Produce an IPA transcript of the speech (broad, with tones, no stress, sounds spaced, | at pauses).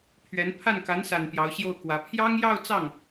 pʰ ɥ ɛ˧˥ n pʰ a˥˩ n k a˧˥ n s a˨˩ n p j ɑ˧˥ ʊ̯ ɕ j o˥˩ ʊ̯ k w ä˧˥ pʰ j ɑ˥ ŋ j ɑ˥˧ ʊ̯ t͡s ɑ˥˩ ŋ